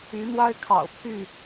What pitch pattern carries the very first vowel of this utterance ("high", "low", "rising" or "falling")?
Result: rising